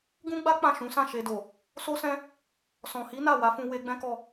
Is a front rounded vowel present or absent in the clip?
absent